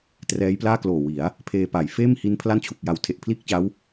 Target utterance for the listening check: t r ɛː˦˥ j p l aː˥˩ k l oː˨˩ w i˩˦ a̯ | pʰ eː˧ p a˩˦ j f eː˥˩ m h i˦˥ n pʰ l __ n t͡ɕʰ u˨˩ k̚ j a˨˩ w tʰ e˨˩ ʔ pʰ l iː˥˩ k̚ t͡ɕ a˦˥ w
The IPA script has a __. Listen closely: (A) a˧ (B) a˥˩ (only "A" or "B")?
B